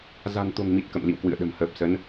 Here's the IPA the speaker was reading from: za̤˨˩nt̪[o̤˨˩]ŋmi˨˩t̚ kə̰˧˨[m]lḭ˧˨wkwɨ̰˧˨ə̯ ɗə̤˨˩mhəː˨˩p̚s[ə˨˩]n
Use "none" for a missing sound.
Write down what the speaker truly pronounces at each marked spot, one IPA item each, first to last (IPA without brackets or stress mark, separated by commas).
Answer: o̤˨˩, m, ə˨˦